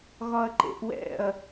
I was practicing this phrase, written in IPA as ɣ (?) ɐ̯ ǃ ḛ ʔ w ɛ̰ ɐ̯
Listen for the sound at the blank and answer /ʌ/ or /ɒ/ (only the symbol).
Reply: ɒ